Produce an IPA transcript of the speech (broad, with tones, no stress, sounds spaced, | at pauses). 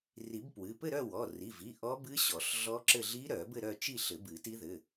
r i˨˩˦ b p w ɨ˩˧˩ p ɘ˥˧ ɾ œ˥˧ w ɔ˩˧˩ r i˩˧˩ v i˩˧˩ ʔ ɔ˦˥ b ɨ˦˥ ɕ ɔ˨˩˦ ɬ ɮ ɔ˦˥ ǁ ɘ˥˧ ɮ i˦˥ ɾ œ˨˩˦ b ɘ˥˧ ɾ œ˥˧ t͡ʃ i˥˧ ɬ ɘ˨˩˦ b ɨ˨˩˦ t i˦˥ ð ɘ˩˧˩